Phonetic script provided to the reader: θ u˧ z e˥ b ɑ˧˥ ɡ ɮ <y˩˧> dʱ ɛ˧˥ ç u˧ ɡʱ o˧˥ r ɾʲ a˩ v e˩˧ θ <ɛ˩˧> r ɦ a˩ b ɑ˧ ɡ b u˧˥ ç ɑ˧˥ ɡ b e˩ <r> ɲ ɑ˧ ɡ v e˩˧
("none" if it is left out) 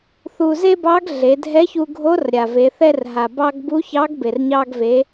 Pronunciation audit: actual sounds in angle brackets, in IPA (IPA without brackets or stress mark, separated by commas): e˩˧, ɛ˧, r